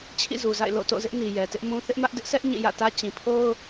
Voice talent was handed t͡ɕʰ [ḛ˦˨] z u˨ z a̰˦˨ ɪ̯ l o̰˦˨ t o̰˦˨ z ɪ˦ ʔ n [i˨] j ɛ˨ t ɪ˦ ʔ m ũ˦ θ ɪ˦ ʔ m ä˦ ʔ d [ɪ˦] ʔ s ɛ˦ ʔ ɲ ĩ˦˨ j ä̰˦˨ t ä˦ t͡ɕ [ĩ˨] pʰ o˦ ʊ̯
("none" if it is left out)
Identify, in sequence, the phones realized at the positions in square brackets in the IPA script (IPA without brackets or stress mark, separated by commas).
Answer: ḭ˦˨, i˨, ɪ˦, ĩ˨